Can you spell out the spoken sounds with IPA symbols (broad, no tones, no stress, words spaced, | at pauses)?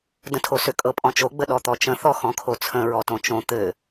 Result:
də̃tʰosʏ kʼɤpʼɔ̃t͡ʃo ɡ͡bəɗɔt̪ɔt͡ʃə̃ θɔxɔ̃kʰot͡sʰə̃ ɹɔtõt͡ʃõ t̪ɘ